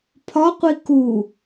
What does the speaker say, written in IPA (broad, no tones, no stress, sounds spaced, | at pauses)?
pʰ ɒ qʷ i k u